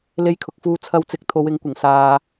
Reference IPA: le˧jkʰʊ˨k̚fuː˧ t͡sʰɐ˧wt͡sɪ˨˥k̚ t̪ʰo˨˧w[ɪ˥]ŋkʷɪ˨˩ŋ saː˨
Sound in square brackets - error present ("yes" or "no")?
yes